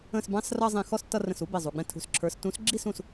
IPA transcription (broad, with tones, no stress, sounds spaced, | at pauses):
ə̃˧˩ s b ɑ̃˨˥ s r ʌ˦ zˤ ĩ˧˩ x ɔ˦ s tː ʌ˦ r ə̃˧˩ s u˨˥ b i˧˩ zˤ u˩˧˩ ɡ͡b ɛ̃˦ tʰ ṳ˧˩ s ǁʰ ə˞˨˥ s t ũ˨˥ s ɡ͡ǁ i˥˨ s ũ˧˩ s